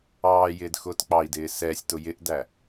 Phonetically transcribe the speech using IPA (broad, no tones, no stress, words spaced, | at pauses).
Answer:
ɑːjɪːd xʊːtk͡pɑi̯dɪː sɛːsʲtʊ jɪʔdæ